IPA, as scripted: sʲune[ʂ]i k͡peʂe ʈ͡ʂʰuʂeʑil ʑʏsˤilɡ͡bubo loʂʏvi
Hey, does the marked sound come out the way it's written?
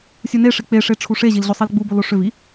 yes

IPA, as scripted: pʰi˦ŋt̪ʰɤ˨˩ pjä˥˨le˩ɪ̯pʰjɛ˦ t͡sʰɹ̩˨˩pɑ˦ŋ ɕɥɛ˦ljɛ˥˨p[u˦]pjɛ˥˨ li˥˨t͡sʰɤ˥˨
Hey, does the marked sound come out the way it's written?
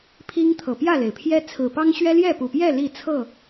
no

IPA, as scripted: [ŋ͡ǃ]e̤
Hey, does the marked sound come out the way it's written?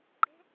no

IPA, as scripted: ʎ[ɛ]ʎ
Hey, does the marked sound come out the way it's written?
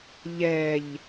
yes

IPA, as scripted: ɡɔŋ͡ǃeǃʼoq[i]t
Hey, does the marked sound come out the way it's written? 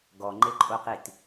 yes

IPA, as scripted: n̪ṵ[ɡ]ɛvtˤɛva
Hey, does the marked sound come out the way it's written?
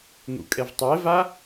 no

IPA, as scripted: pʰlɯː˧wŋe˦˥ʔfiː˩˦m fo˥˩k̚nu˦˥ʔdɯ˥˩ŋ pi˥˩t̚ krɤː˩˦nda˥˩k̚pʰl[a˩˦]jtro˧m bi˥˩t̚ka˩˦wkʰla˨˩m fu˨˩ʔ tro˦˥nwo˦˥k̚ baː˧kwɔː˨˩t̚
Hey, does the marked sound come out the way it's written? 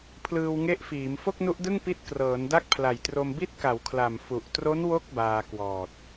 no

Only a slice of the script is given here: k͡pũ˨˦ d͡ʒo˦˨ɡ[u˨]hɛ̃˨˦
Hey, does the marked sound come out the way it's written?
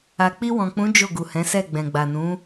yes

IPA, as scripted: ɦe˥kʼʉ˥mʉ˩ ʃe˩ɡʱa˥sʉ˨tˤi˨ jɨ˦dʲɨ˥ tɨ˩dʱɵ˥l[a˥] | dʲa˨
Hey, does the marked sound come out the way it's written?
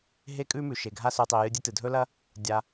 no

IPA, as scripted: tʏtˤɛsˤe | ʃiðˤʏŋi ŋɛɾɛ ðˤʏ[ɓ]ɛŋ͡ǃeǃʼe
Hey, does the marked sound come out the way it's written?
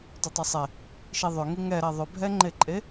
no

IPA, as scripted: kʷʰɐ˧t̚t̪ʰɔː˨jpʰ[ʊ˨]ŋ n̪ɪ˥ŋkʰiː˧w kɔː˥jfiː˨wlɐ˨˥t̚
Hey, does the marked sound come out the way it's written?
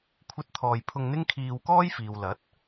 no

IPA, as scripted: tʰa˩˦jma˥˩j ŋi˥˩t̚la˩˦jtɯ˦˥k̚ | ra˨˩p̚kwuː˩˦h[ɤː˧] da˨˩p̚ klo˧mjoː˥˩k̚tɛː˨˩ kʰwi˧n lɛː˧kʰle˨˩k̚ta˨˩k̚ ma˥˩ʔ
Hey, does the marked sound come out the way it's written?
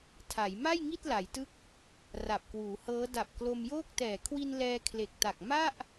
no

